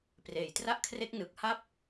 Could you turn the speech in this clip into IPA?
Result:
p r eː˩˦ j t r a˥˩ ʔ kʰ r e˦˥ k̚ n ɯ˨˩ k̚ h a˥˩ p̚

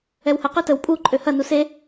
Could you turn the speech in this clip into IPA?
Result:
ɛ w h ə q ø t ə w pʼ u ǃʼ ø h ɐ n u s e

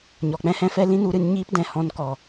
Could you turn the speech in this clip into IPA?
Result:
ɲ ɔ˨ k͡p ɛ̃˦ h ɛ̃˦ f ɛ˦ l ĩ˦ n u˧ ɾ ɨ˧ n ɲ iː˦ p d ɛ̃˨ h ɔ̃˧ n k ɔ˨

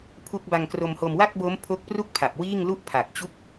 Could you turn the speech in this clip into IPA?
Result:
pʰ u˦˥ k̚ b a˧ ŋ k r o˧ m h o˧ m w a˥˩ k̚ b o˦˥ m pʰ o˦˥ k̚ p r u˥˩ k̚ pʰ a˨˩ p̚ w iː˥˩ ŋ l u˥˩ ʔ pʰ a˨˩ k̚ t͡ɕ u˥˩ k̚

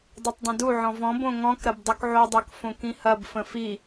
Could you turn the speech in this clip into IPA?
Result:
dˤ i tˤ dˤ ə̃ d u ʕ ɔ̃ v ɔ̃ b õ ŋ ɔ̃ k ɾ ɐ b dˤ u k ʕ o dˤ ɜ k f õ k ĩ h ɐ b f ə̃ f i

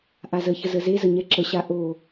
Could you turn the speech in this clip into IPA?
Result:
ʔ a z ə ç ə z ə z e z ə ɲ ɛ ǁ ə ɕ a ʔ o

